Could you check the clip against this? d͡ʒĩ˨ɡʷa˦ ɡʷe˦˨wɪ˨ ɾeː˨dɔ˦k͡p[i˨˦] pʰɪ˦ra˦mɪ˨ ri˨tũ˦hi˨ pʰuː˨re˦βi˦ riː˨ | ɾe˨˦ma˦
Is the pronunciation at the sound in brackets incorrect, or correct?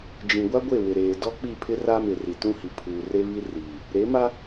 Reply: incorrect